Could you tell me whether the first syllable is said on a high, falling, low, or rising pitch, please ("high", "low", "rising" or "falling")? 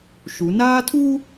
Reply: rising